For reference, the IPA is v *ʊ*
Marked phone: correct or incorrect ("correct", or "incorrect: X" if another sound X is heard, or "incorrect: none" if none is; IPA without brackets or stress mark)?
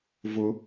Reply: correct